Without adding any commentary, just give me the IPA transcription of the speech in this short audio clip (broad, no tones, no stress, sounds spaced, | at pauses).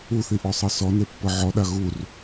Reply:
u θ i ʔ ɔ sˤ ɤ s ɔ n e pː ɤ ʕ ɔ ɗ a ɣ u r